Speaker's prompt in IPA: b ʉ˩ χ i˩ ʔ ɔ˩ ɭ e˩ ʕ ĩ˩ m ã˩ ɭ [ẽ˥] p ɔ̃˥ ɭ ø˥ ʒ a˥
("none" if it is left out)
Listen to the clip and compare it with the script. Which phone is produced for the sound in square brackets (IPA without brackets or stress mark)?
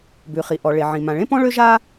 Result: ẽ˥